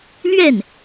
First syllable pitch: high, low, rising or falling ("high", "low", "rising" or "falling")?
falling